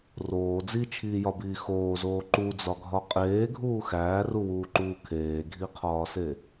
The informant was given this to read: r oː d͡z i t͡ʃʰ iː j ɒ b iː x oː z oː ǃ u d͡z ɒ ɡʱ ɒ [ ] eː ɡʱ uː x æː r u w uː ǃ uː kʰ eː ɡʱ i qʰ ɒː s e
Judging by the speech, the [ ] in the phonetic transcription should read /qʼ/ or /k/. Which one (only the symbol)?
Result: qʼ